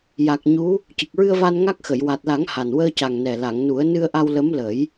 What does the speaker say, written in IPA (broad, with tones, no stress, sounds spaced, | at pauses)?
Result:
j a˨˩ k̚ ɲ u˧˥ | c ɨ˨˩ k̚ ɹ ɨ˧ ə̯ v a˧ n ŋ a˦˥ k̚ x ə˨˩˨ j w a˨˩ t̚ l a˨˩˦ ŋ h a˨˩ n w əː˧ c a˨˩ ŋ n ɛ˨˩ l a˨˩˨ ŋ n u˨˩˦ ə̯ n ɨ˧ ə̯ ʔ a˧ w l ə˧˥ m l ə˨˩˦ j